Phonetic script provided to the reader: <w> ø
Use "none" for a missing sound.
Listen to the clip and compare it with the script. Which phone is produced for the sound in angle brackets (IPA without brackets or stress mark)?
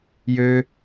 j